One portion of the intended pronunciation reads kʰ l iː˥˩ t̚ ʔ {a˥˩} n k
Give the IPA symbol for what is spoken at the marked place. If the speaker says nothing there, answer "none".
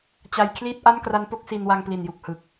a˥˩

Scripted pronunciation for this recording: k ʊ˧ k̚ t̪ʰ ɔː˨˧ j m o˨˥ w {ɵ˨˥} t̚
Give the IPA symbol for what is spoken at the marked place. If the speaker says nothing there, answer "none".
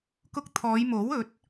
ɵ˨˥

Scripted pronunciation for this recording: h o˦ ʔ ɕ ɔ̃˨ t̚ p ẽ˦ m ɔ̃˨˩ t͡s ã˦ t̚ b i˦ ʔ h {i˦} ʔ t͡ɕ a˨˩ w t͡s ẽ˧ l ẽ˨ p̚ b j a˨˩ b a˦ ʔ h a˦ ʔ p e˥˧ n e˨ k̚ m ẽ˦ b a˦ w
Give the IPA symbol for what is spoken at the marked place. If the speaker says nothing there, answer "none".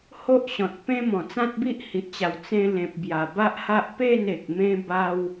i˨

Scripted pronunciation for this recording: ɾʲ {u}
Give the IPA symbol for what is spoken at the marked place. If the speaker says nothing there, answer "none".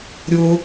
ʊ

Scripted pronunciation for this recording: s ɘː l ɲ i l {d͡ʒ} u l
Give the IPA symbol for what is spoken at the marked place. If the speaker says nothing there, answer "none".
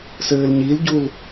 ɟ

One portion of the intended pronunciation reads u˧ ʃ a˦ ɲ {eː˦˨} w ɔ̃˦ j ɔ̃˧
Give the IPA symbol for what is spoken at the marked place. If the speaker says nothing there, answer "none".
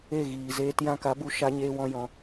eː˦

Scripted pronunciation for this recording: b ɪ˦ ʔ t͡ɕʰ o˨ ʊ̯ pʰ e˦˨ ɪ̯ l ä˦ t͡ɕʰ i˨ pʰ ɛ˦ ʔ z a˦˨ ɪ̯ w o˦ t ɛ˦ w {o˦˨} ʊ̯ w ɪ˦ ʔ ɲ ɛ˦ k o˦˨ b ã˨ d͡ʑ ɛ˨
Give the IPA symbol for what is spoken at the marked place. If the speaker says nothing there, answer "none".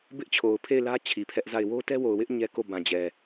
o˨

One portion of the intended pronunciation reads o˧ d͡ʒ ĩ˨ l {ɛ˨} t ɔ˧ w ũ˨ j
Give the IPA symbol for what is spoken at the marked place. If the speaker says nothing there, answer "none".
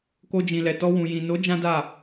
ɛ˨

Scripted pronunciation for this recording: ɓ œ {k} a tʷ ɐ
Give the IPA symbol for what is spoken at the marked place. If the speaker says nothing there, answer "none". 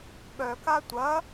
k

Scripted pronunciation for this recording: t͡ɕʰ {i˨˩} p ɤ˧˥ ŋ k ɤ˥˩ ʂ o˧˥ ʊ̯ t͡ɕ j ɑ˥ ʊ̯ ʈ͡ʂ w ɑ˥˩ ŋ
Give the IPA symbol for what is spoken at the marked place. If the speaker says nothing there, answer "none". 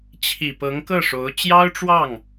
i˨˩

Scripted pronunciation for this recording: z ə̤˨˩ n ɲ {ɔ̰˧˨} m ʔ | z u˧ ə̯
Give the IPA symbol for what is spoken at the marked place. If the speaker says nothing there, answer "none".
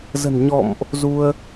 ɔ̰˧˨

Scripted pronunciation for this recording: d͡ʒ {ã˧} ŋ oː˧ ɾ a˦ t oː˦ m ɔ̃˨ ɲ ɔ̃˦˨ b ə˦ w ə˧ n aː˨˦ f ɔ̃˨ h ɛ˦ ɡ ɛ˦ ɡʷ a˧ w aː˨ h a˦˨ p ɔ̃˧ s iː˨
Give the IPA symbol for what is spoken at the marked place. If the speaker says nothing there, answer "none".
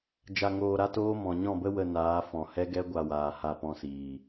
a˧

